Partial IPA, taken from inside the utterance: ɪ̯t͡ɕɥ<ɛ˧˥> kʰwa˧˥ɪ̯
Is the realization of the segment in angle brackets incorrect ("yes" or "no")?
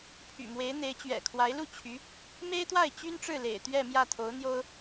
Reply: yes